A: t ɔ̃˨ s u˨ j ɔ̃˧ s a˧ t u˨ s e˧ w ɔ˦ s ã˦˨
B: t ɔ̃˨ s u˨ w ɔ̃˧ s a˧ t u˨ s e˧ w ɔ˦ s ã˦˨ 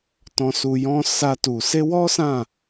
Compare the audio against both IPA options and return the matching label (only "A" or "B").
A